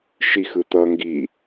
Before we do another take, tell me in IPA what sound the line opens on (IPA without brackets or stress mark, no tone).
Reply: ʃ